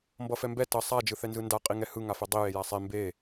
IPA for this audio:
m b ʌ f ɛ m b ɛ t ʌ sˤ a d͡ʒ ɯ θ ɛ n z ɯ n d a qʼ i ŋ ɛ h ɯ ŋ a f ɛ dˤ i j e j a sˤ e m b e

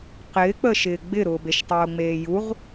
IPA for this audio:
q ɪː k͡p ə ʃ ɪː ɡ͡b ɪ ɾ ʊː b e ʃ tˤ ʊː ŋ͡m eː j u ʁ

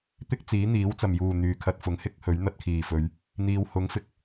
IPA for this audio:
t̪ ɪ˥ k̚ t͡s iː˨˥ n̪ iː˨˥ w t͡s ɐ˨˩ m j uː˨˩ n̪ yː˨ kʰ ɐ˧ t̚ f ʊ˨˥ ŋ h ɪ˥ k̚ h ɵ˨˥ ɥ n̪ ɐ˧ t̚ kʰ iː˨˩ f ɵ˨˧ ɥ | n̪ iː˨ w h ʊ˨˥ ŋ f ɪ˧ k̚

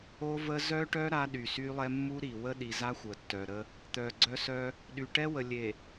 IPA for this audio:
o˦ v ə˦ z œ˦ ʈ œ˦ ɾ a˦ ɗ y˨ s y˦ lˠ ɛ˦ mː u˦ ɾ i˨ w ə˦ ɗ i˨ z a˦ xʷ ə˨ tː œ˨ ɾ ə˦ | t̪ œ˨ ɡ͡ǀ œ˦ s œ˦ | ɗ y˨ ʈ ɛ˦ w ə˨ lʲ e˨

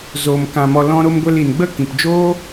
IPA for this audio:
z oː˨ m k ã˨ m ɔ˨ l ɔ̃˧ ɾ o˧ m ɡʷ ɛ˧ l i˨ n ɡ͡b ə˧ k ĩ˨ p d͡ʒ oː˦

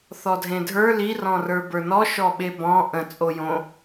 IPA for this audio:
θ ɔ dʱ ẽ dʱ ə˞ l i r ɔ̃ r ə˞ b ə˞ n ɔ ʃ ɔ ɓ e b ɔ̃ ʔ ə̃ t͡sʼ o j õ

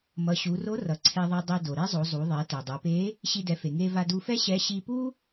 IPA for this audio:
m ʌ˩˧ ɕ u˩˧ r o˧˥ r ʌ˩ ǀʰ e˧ ðˤ ɛ˧ dˤ i˧ d o˩ ɾ e˥ zˤ o˩˧ zˤ u˩˧ ðˤ e˩˧ t ɛ˩ dˤ ɛ˩˧ p e˧˥ | ɕ i˧ d ɛ˩˧ f e˩ ŋ e˧ v a˧ d u˧ f ɛ˥ ɕ ɛ˧˥ ɕ i˧ p u˥

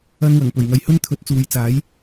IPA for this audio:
ɐ˧ n w ɐ˨˩ ŋ p ɵ˨˩ ɥ ŋ ɐ˨ j h ɵ˥ n t̪ʰ ɵ˨˥ t̚ t͡s uː˨ j t͡s aː˨˥ j

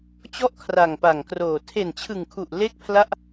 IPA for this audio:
t͡ɕ ɔ˥˩ ʔ kʰ r a˨˩ ŋ p a˨˩ ŋ k r oː˨˩ tʰ e˨˩ n t͡ɕʰ ɯ˨˩ ŋ kʰ u˨˩ ʔ l e˥˩ k̚ pʰ l a˥˩ ʔ

